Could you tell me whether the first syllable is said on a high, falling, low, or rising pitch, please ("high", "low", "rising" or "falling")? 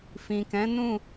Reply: low